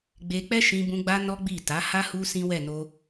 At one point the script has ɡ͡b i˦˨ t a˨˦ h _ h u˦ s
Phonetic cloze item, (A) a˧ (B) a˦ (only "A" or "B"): B